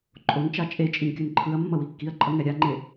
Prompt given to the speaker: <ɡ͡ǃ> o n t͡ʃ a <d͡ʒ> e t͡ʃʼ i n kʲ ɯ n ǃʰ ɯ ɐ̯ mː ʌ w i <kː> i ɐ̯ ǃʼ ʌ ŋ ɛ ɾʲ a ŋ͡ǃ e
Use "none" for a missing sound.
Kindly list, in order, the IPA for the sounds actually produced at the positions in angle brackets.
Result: ǃʼ, t͡ʃʼ, kː

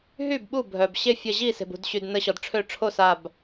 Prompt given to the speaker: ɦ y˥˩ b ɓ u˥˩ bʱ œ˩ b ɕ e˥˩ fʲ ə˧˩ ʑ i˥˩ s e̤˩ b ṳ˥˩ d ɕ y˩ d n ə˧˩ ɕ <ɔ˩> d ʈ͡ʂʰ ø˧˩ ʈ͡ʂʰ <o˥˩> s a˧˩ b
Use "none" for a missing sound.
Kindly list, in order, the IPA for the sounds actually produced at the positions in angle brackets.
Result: ɔ˩, o˥˩

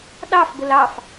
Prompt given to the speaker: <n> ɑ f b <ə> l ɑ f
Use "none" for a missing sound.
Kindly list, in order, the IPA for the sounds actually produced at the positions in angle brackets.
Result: ɗ, ə

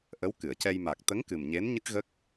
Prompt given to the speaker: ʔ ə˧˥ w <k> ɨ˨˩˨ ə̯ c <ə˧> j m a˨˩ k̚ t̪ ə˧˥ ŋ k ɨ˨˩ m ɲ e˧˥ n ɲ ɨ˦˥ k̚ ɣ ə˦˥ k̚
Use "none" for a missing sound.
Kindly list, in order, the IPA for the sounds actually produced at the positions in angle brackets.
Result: k, ɛ˧

